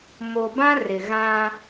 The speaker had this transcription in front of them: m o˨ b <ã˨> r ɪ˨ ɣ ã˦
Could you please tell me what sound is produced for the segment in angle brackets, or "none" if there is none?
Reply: ã˦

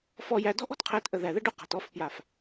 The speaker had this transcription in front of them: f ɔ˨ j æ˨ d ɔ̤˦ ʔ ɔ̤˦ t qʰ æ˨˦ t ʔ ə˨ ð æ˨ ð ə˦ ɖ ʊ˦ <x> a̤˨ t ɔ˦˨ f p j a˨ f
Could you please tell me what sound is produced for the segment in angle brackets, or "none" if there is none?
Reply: q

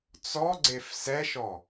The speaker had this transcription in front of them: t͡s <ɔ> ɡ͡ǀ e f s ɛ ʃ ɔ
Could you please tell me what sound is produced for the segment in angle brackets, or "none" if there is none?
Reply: ɔ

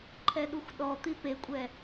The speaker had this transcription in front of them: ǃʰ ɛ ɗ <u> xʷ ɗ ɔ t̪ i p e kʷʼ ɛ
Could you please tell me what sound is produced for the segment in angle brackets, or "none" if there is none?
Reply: u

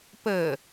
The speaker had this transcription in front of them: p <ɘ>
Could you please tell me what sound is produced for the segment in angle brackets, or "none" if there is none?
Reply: ɘ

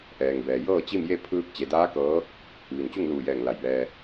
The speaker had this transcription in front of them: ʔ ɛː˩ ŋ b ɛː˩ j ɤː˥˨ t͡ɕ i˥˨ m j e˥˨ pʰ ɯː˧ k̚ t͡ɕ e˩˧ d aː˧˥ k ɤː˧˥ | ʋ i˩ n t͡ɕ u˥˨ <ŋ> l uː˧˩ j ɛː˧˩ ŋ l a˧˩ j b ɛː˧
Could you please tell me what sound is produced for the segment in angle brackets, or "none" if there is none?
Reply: ŋ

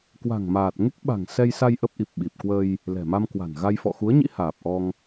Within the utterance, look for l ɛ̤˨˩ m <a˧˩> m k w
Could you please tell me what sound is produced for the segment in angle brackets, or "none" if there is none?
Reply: a˧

